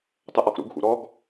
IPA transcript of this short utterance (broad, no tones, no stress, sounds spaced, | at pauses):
tˤ ə ʔ ɔ x ɾ ṵ ɡ x ṵ ɾ ɔ ɡ